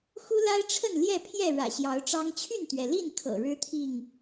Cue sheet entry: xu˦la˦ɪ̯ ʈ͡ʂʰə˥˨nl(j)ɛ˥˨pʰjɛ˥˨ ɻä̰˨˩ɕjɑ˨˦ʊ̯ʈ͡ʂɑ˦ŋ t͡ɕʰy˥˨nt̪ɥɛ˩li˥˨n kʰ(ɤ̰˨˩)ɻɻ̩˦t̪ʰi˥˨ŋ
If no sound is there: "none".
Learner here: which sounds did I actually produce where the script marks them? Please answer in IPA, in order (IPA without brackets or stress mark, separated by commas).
j, ɤ̰˨˩